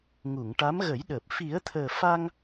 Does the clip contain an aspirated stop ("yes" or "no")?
yes